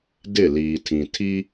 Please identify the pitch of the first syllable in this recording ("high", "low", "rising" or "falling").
falling